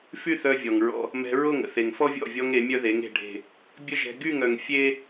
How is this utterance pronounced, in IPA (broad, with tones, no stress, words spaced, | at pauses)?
fy˦θœ˧vʲɔ˨ŋɹɔ̰˧ | mɛ̤˧ɹo˦˨ŋə̰˨ θe˨ŋfɔ˦vʲɔ̰˦˨vʲɔ˧ŋ e˨˦mʲœ˦ðe˨˦ŋ e̤˨ɖʱe̤˨ | bʲə˦ʒɛ̤˧ ɡy˦˨ŋœ˨ŋ fʲe˦